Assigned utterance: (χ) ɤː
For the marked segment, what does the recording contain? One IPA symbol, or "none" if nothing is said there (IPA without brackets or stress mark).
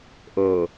ʔ